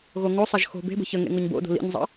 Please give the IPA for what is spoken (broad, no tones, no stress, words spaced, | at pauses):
ɣoŋosˤaʒ xo̤ be̤bə̤ çə ŋḛŋoɲbo̰do̤ lḭɲzˤɑ̰